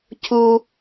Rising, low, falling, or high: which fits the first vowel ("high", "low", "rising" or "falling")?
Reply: high